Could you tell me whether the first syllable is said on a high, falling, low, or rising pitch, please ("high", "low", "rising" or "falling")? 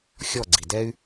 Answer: falling